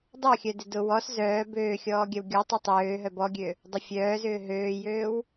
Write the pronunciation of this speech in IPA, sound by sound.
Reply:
dˤɐ xʲœdɪdʊ wɔs zœː bøːxʲɔːɡʲɐw ɡʲɔtˤʏ tˤøː ɦœbɔɡʲø | dˤʊfʲœːzʏː ɦøːjøːw

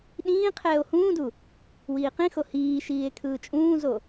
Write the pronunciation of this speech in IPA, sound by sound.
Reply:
ɗĩː qʰɛːo̯hũːdu | wiːqĩxo hiːʃiːe̯ kʰɯːt͡ʃʼũːzo

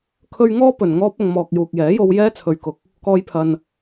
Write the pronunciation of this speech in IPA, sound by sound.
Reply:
kʰɵ˥ɥ ŋɔː˥ pɵ˨nŋɔː˥p̚ɐ˧ŋ mɔː˨k̚juː˨k̚jɛː˨˥jo˧w jɛː˥t͡sʰɵ˨ɥkʊ˨k̚ | kɔː˧jpʰɐ˨n

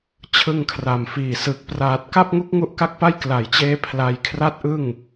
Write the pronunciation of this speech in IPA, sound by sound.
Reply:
t͡ɕʰɯ˧ŋkʰra˨˩mfiː˨˩ sɯ˨˩k̚ praː˨˩t̚ka˥˩p̚ ŋu˦˥k̚ŋu˦˥ʔka˦˥k̚pa˥˩j kla˨˩jt͡ɕeː˧ pʰla˧jkʰra˥˩t̚ʔɯ˥˩ŋ

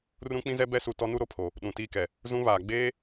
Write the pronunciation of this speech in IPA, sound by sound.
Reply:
rũ˦k͡pĩ˦zɛ˦ bɛ˦su˨ tɔ˦nu˦ɾo˨ pʰo˨ | ɗũ˨tiː˦kɛ˨ | zũ˦βaː˨ ɡ͡beː˦

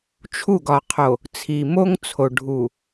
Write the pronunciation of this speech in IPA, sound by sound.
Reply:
t͡ʃʰu˦˨ɡɒ˨qʰo˨ | t͡sʰi˨mo˦ŋt͡sʰo˨ ɖʱu˨

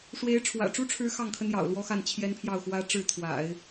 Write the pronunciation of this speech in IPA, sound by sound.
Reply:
ʂwe˧˥ɪ̯ʈ͡ʂʰwä̰˨˩ʈ͡ʂu˥ʈ͡ʂʰɻ̩˧˥ xɑ˥˩ŋkʰə˥n jɑ̰˨˩ʊ̯ lwɔ˥xa˥˩nt͡ɕʰjɛ˥npʰjɑ˥˩ʊ̯ xwä˥ ʈ͡ʂɻ̩˥˩t̪ʰwa̰˨˩˦ɪ̯

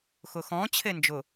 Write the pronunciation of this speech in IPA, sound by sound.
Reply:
xʊxɔ̃ t͡ɕʰend͡ʒʊ

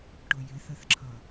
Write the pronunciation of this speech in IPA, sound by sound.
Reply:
ʈʊjɪθəθǁʰʌ

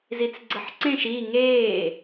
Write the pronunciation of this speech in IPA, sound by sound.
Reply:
zit͡sɡ͡ǀəħǀẽʃ i ŋeː

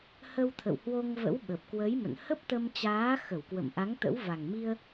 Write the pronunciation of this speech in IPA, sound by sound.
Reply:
hə˧wt̪ʰə̰˧˨w hwo˧ŋvə̰˧˥wɓə˨˩p̚kwə˨˦j mə̰˧˨nhə˦˥p̚t̪ə˧m t͡ɕaː˨˦xə˧˩wkwə̰˧˨m ʔa˨˦ŋt̪ə̰˧˥wva˨˩ŋmi˧ə̯

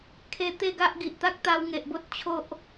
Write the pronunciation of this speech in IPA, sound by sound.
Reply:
kʰe˧ t̪e˥˧ɡa˦ʔɡi˨ʔ t̪a˦k̚t̪a˧wŋe˨ʔbo˦t̚ t͡ɕʰo˦ʔ

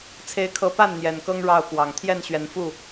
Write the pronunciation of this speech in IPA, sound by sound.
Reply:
t͡sʰe˦ɪ̯kʰɤ˦ pa˥˨n n̪jɛ˨˩nkɤ˦ŋ ɻɑ˥˨ʊ̯kwɑ˨˩ŋ t̪ʰjɛ˥˨nɕɥɛ˨˦nfu˥˨

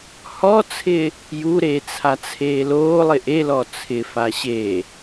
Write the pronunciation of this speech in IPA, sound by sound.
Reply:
hɔt͡sʰɪː | juɾeː t͡sʰat͡sʰeːloːlˠɪ ʔelɔ t͡sʰɪfa ɕeː

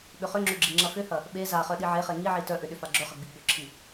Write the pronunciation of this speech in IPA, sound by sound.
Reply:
ɓʏχʏŋ͡ǁʏ ɡ͡ǁiŋ͡ǁɐfʏhɐ | ɓe zaχœ ɗiʕeχe ŋiʕi tœʔʏ ɗʏfaɡ͡ǁœχɐ ɡ͡biɡ͡bʏǁʰi

